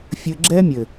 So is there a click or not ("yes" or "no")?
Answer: yes